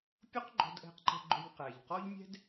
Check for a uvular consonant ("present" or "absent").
present